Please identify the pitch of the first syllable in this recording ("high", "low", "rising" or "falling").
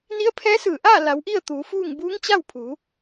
rising